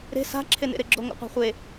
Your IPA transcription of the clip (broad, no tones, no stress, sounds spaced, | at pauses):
ɾ e̤ s a̤ ǁʰ e n ḛ ɾ e ɡ͡ǁ o ŋ o̰ qʷ a̤ χʷ e